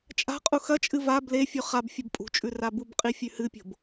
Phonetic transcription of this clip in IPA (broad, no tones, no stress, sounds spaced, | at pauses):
t͡ʃʼ a̤ qʼ u x ɐ t͡ʃʼ ɨ v a b l e fʲ ʉ χ a b fʲ o b pʼ ṳ t͡ʃʼ ʉ r a b u b qʼ i fʲ ʉ h ɨ pʲ o̤ b